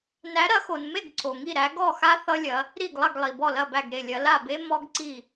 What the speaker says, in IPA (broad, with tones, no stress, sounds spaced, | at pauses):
n æ˨˥ ɾ ɐ˨˥ x o˨ n m e˥˩ ɡ ǀ o˨ ŋ i˥˩ ɾ æ˨˥ ɡ ɔ˥˩ x a˦˥ θ ʌ˦˥ lʲ ɐ˨˥ | ɾ i˥˩ ɡ lˠ ɐ˥˩ ɡ lˠ i˨ b ɔ˥˩ l ɐ˥˩ b æ˥˩ ɡ ɾ e˥˩ lʲ ɐ˦˥ l a˥˩ b e˦˥ m ɔ˦˥ ɡ ǀ i˥˩